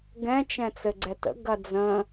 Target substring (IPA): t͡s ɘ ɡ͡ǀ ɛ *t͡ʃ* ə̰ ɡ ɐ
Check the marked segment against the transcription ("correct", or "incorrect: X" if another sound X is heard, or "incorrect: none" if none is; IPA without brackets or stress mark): incorrect: t